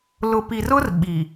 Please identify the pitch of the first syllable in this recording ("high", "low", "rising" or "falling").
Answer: low